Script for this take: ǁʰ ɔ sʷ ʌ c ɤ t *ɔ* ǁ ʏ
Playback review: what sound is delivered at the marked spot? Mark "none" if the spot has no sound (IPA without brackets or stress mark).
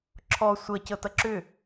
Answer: ʌ